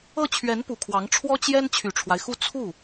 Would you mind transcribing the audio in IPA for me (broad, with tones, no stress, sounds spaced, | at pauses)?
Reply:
ɤ˥˩ t͡ɕʰ ɥ ɛ˧˥ n p u˨˩ kʰ w ɑ˧˥ ŋ ʈ͡ʂʰ w ɔ˥ t͡ɕ j ɛ˥ n t͡ɕʰ y˨˩ ʈ͡ʂʰ w a˦ ɪ̯ x u˥˧ t͡sʰ u˥˩